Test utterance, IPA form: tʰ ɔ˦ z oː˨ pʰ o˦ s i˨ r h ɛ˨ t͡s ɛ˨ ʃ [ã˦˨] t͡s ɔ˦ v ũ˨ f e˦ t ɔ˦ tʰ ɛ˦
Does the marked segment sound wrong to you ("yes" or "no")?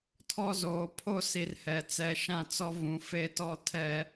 no